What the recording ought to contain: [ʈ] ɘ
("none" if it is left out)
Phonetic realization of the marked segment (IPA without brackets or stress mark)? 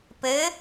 p